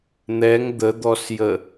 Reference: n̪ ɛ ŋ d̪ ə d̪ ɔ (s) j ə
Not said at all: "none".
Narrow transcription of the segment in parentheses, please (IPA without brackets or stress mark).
s